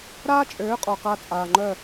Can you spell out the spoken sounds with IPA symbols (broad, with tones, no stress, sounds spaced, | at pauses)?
ɾ aː˦ t͡ʃʼ øː˨˦ qʼ ɔ˨ q a˦ t͡sʼ aː˨ ŋ͡ǃ œ˦˨